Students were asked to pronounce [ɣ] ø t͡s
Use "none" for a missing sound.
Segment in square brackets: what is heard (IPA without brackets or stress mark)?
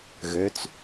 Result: ɣ